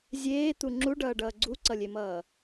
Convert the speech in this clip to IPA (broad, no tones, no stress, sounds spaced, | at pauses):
zʲ eː t̪ u ŋ͡ǁ u ɖ ʌː ɖ ʌː ɡ͡ǀ u ǀ ʌ lʲ e m ʌː